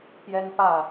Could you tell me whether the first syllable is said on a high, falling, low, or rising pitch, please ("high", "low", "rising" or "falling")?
high